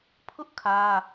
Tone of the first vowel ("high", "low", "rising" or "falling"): high